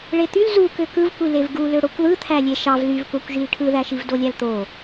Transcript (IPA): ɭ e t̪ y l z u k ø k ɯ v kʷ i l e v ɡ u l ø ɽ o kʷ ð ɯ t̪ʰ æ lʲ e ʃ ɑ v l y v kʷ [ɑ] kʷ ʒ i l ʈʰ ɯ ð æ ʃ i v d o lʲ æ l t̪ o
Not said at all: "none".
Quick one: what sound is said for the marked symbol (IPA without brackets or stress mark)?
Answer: ɑ